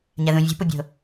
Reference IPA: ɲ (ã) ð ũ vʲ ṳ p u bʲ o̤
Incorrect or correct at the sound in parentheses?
incorrect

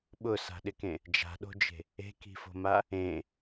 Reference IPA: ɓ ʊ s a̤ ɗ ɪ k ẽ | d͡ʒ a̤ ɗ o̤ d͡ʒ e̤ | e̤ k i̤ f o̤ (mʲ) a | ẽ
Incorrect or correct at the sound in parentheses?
incorrect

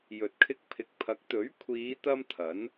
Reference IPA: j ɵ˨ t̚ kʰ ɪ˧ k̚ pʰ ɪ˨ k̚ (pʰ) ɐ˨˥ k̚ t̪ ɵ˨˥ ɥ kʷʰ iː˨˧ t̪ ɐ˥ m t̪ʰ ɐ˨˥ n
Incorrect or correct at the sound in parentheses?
correct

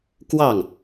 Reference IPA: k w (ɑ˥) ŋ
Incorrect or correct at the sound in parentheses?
incorrect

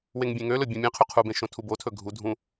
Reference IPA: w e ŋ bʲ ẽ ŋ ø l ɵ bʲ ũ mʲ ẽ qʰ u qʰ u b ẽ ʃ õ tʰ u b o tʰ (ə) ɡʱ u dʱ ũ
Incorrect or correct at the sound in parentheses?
incorrect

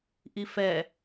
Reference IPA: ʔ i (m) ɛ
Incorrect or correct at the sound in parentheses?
incorrect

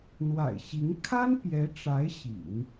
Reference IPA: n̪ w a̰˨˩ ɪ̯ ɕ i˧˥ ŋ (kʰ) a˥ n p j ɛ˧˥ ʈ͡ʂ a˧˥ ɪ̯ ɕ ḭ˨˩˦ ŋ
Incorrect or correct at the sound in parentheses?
correct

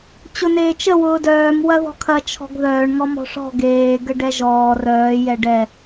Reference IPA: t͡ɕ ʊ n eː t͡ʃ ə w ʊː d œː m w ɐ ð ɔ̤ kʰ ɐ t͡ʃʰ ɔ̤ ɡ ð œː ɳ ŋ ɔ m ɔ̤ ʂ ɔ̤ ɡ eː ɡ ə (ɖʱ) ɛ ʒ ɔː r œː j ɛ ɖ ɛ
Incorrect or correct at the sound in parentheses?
incorrect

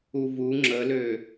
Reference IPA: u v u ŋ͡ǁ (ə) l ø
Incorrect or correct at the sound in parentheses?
correct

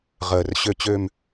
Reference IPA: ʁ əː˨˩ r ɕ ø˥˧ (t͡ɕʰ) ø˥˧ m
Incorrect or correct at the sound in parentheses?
incorrect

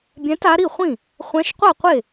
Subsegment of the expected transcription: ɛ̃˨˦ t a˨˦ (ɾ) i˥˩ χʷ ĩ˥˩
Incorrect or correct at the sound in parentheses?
correct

